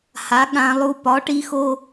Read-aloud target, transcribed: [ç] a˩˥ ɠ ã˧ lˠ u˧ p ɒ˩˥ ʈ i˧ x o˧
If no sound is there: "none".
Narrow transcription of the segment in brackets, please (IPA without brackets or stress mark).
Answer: h